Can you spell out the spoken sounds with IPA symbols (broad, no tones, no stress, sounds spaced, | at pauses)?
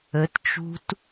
ə t t͡ʃ ṳ t